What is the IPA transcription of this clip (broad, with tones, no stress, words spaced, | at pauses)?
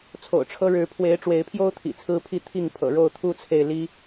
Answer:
t͡sʰo̰˨˩ʊ̯ʈ͡ʂʰɤ˦ ɻɻ̩˨˦pʰwe˨˦ɪ̯ ʈ͡ʂwe˨˦ɪ̯pʰjo˦ʊ̯t̪ʰḭ˨˩ t͡sʰɹ̩˦pʰi˥˨t̪ʰi˥˨ŋpʰɤ̰˨˩ ɻo˥˨ʊ̯t̪ʰu˦t͡sʰe˨ɪ̯ li˦